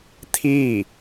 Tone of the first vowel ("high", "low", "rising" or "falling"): falling